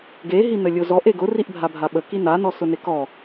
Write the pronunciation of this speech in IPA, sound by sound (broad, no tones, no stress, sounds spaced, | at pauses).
ɡ e ɦ i n ə lʲ ʊ z ɔ ʔ e ɡ ʊ r i ʔ bʱ a bʱ a ɓ ə k i n a n ɔ s ʊ n e k ɔ